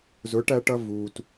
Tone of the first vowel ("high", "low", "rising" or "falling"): rising